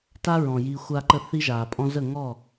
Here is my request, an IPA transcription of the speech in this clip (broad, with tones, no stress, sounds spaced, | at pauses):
t a˦ ɹ ɔ̃˨ j i˧ xʷ a˦ ǃ ə˦ θ i˦ ʒ aː˨ pʼ ɔ̃˦ z ə˦˨ ŋ ɔ˦˨